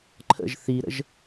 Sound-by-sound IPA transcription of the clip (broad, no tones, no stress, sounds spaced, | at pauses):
ǃʰ ə̰ ʒ θ i ɾ ə̰ ʒ